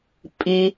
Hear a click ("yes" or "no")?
no